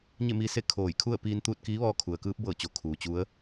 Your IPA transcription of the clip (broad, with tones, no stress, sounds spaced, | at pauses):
ɲ e˥˨ m iː˧ s e˥˨ kʰ oː˧˩ j kʰ u˥˨ ə̯ p iː˧ n t̪ uː˥˨ t̚ k iː˧˥ ʋ ɔː˧ kʰ u˩ ə̯ k ɯː˧˥ p̚ b ɤː˧˩ t͡ɕ o˩ kʰ uː˩ t͡ɕ u˧˥ ə̯